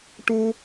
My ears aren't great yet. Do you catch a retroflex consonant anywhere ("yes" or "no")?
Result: yes